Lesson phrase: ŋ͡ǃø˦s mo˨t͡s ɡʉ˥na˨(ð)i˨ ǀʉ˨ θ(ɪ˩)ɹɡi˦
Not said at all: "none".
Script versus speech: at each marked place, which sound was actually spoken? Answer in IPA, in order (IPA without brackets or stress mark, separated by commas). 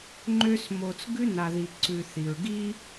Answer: ð, i˩